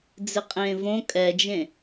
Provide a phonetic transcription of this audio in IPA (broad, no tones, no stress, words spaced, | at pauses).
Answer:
d͡zɪqʼẽːvõ kʼɛd͡ʒẽ